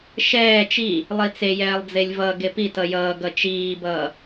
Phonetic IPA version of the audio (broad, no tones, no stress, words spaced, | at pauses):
ʃɛː t͡ʃi | lˠit͡sejɛːlˠd͡zelʲ vʌ ɡepi tʌjʌːɡʌ t͡ʃiːbʌː